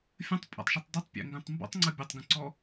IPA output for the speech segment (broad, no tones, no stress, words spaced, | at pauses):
fʲə̃tˤpʼa̰tˤʃytˤ dɛtˤpʲɛ̰ŋɡœ̃tˤ mbɔ̰tˤŋ͡ǀɐ bʲɐtˤɡə̃ǀɔ